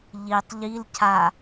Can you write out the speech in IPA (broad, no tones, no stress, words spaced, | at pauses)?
ʎitˤ ʎil cʰa